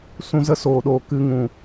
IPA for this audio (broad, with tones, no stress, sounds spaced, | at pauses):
s ũ˧ z ə˧ s oː˨ ɗ oː˨ k ɨ˨˦ ŋ ũ˨